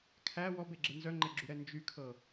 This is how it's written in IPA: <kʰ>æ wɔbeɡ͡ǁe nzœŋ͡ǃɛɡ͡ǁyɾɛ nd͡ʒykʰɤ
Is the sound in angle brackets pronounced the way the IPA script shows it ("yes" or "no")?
yes